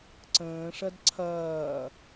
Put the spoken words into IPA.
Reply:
ǀ ə̃ː ʂ ɐ d ǀʰ ɐː

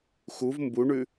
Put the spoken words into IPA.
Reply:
x u v m b u ɳ ʉ

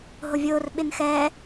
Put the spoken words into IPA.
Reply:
ɦ ʊ vʲ ʊː r ɓ ɪ n x ɛ

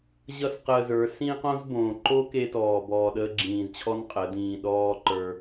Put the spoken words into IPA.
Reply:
ʑ ʌ˦ s q əː˧ z ə˞˨˦ s ĩ˦ q õ˦ z b õː˨ ǃ o˦ k e˧ t ɔː˨ b ɔː˧ ɗ əː˦ ɡ͡ǁ ĩː˧ z t͡ɕʰ ɔ˦ n qʼ ə˨˦ d ĩː˧ ɗ ɔː˦ ǃ ə˞˧

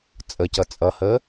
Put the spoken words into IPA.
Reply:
t͡sʼ ə c ʌ t͡sʼ ʌ h ə

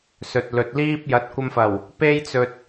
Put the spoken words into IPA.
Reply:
s ɵ˨ t̚ l ɵ˨ t̚ l iː˥ p̚ j ɐ˨˥ t̚ kʷ ɐ˧ m f ɐ˨˩ w | p e˥ j t͡s ɵ˧ t̚

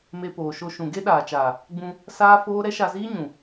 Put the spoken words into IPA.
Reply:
m e˧ p oː˨ ʃ o˧ ʃ ũ˨ ɡ e˦ ɗ aː˨ t͡ʃ aː˨ | ɡ͡b ũ˧ | s aː˦ f oː˦ ɾ ɛ˦ ʃ a˧ z iː˦ ɲ ũ˨

